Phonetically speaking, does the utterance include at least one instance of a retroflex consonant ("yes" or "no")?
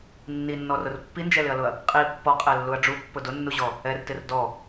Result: yes